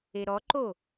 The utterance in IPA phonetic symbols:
eɾɔǃo

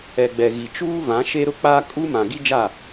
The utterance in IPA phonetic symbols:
ɛ˨ɡ͡bɛ˨ɣi˨ t͡ʃuː˦vã˨˦ ʃe˦ɾʊ˦k͡paː˦ kʼu˦mã˨ ɡi˦d͡ʒa˦˨

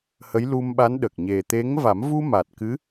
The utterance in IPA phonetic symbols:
hə˧˥jlu˧m ɓa˧˥nɗə˨˩k̚ ɲe˨˩t̪e˧˥ŋ va˨˩˦mvu˧ ma˨˩t̚kɨ˧˥

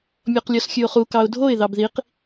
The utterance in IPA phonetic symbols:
mʲɔqlʲɔsxʲʉʊ̯χu kɑʊ̯dʱoɪ̯ ðɑbðiq

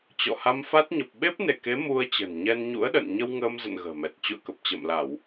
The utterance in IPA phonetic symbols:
t͡ɕɔ̰˧˨ha˧mfa˦˥t̚ ɲə˨˩p̚ɓe˦˥p̚ne˧˩ke˨˦ mu˧ə̯t͡ɕə̤˨˩n ɲɛ˧nɲṵ˧˥ə̯ɗə̰˧˨n ɲə˧wŋəː˧mzə̰˧˨n ɣə̤ː˨˩mɛ˨˩t̚ t͡ɕṵ˧˨ə̯kə˨˩p̚ t͡ɕə̰ː˧˨mla˧˩˨w

